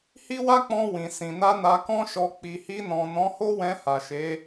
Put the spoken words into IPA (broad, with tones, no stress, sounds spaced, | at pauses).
h i˦ w a˦ k͡p ɔ̃˧ w ĩ˨ s ĩ˨ n a˧ n a˧ k ɔ̃˦ ʃ ɔ˧ k͡p i˨ h i˧ n ɔ̃˨ n ɔ̃˨˦ h o˦ w ɛ̃˧ h a˨ ʃ e˨˦